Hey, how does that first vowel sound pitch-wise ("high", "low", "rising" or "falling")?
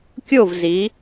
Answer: falling